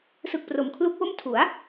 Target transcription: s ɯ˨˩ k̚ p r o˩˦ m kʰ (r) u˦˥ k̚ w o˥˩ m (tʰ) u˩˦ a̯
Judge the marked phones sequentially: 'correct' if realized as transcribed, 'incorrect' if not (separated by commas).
incorrect, correct